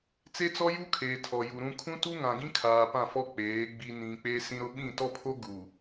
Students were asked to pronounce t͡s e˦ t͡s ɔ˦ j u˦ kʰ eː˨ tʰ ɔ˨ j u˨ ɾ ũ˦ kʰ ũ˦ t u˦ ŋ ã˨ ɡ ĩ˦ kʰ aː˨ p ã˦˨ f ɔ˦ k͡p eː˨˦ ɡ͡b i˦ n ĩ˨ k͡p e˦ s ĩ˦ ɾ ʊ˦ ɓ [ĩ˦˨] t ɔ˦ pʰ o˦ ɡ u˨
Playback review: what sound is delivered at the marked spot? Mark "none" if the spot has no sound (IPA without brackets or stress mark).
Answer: ĩ˦˨